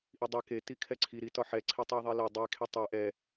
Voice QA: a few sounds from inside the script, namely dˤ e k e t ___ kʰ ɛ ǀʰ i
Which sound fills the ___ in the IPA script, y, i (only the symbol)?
i